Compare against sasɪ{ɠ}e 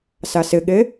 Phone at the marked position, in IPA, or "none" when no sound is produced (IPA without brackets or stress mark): ɠ